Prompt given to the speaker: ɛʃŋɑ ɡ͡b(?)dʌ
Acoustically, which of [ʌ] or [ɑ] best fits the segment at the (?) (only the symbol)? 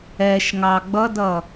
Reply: ʌ